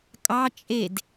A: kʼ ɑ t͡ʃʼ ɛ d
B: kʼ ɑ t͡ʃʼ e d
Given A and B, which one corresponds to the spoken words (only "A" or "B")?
B